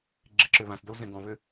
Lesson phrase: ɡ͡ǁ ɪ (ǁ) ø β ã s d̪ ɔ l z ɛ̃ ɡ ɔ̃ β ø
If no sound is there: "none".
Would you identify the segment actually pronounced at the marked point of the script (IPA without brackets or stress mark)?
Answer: ǁ